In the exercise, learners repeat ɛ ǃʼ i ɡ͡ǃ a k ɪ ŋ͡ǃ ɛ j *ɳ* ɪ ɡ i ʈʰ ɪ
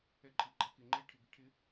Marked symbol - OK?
no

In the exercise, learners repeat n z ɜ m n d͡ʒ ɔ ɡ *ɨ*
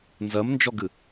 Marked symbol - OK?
yes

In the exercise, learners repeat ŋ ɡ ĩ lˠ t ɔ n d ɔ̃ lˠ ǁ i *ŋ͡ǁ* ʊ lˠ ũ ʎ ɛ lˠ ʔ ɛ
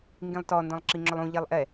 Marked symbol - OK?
yes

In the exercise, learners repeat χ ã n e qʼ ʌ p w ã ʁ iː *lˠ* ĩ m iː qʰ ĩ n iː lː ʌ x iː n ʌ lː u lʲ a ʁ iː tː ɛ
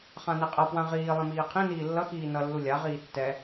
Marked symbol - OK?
yes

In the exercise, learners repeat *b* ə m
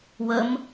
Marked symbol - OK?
no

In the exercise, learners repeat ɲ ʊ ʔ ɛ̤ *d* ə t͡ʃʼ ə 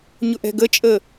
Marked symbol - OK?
no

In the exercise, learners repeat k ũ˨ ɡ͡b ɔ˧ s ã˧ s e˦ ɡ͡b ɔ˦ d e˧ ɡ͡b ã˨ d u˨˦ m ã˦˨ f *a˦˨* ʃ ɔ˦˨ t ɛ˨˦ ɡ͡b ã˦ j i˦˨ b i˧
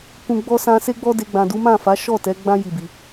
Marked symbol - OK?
no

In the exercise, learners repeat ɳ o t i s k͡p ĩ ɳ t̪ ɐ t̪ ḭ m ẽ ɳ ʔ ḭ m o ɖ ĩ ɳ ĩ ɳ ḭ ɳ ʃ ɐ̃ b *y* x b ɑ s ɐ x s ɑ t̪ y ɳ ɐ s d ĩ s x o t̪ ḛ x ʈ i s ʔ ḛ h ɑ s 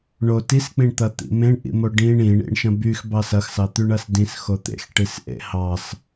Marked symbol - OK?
yes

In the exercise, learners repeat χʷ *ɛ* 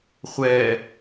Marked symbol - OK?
yes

